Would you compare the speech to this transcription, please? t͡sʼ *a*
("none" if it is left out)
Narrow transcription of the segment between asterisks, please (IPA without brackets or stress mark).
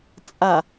a